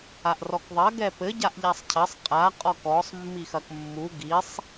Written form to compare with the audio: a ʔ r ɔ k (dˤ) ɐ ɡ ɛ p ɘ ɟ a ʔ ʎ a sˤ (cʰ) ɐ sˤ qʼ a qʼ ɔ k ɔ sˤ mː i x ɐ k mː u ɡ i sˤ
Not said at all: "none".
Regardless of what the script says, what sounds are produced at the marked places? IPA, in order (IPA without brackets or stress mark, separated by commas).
ðˤ, cʰ